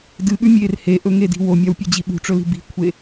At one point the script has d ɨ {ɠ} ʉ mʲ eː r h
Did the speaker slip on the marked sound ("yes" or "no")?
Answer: no